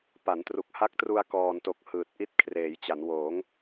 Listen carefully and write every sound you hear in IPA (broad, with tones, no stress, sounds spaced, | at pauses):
p a˩˦ n t r u˨˩ k̚ h a˦˥ k̚ t r u˧ a̯ k ɔː˨˩ n t o˨˩ k̚ h ɯː˨˩ t̚ ʔ i˦˥ t̚ kʰ r eː˩˦ j t͡ɕ a˩˦ n w oː˩˦ ŋ